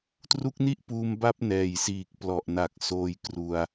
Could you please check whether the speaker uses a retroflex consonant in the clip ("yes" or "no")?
no